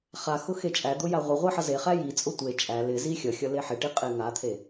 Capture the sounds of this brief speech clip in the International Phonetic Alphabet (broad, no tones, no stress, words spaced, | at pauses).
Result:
χa xʊxet͡ʃʼæd̪ʊ jaʁʷɪʁʷe ħʌzeχæ jit͡sʼʊ tʷe t͡ʃʼæ lɪzi xʲʌxʲʌ leħɪʈi qʼeŋat̪ʰe